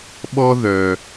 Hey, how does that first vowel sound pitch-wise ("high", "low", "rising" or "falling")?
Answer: high